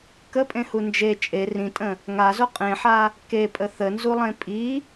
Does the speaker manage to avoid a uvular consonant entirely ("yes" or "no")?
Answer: no